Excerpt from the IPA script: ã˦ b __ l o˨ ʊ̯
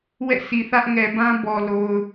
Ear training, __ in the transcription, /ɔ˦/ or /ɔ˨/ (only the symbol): ɔ˨